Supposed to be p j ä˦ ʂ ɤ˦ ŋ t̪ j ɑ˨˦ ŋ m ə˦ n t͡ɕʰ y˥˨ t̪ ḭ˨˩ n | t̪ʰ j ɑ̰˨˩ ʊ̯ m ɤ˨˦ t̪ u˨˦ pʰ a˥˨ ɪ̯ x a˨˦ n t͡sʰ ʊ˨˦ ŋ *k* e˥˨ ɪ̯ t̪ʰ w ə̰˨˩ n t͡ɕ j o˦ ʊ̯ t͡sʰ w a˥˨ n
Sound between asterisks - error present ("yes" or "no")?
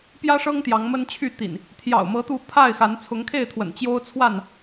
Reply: yes